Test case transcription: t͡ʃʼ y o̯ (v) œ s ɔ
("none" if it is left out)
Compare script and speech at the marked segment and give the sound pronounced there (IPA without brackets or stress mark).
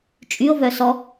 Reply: v